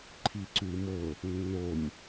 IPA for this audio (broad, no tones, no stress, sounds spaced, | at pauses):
ǃʰ i ǀ ʉ i̯ m ɤ | nː o nʲ